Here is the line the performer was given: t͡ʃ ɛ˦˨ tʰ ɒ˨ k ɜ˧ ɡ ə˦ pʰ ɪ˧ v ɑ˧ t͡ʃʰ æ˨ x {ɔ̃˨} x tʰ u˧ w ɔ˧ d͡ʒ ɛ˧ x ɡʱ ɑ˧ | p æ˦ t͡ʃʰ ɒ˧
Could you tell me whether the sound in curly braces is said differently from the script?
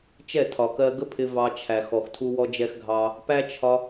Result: yes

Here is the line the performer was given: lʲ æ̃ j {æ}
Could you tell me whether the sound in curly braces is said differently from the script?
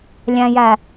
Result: no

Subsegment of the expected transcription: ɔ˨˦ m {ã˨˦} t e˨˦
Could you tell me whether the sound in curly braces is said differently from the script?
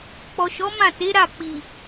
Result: yes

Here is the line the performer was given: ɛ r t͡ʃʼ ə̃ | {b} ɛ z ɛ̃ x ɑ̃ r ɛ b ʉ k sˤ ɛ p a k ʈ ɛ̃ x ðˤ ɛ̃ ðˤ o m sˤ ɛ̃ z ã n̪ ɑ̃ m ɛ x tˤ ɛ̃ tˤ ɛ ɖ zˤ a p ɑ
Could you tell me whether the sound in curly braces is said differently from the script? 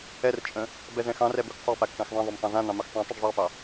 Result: no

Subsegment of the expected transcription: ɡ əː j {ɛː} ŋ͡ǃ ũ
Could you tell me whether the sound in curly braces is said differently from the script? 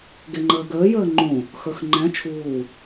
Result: yes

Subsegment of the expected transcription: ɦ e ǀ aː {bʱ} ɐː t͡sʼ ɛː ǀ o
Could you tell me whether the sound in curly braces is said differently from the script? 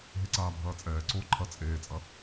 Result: no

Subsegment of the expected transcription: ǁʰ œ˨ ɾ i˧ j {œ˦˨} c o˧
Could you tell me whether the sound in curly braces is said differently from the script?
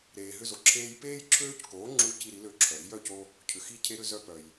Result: no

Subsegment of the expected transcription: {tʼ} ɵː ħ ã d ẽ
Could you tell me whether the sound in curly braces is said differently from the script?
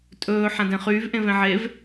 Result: no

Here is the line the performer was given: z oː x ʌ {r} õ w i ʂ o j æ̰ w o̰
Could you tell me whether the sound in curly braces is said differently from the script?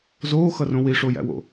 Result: no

